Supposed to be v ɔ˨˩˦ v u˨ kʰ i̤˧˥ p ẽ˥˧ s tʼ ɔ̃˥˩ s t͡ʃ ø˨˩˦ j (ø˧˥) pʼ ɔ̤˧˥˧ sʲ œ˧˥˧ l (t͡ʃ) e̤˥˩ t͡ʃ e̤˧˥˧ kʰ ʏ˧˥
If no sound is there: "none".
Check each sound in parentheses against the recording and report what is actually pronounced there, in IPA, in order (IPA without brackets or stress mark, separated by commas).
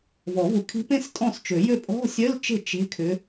ø˥˩, t͡ʃ